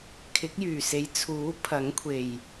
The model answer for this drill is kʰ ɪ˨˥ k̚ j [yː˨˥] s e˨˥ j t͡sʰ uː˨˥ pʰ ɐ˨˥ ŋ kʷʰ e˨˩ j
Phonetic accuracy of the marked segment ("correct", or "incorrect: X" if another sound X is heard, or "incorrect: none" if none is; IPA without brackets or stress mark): incorrect: yː˨˩